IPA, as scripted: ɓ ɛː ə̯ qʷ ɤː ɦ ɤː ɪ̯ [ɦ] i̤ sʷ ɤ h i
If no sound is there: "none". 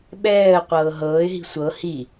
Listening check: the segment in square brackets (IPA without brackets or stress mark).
ɦ